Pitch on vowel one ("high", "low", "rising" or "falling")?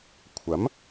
rising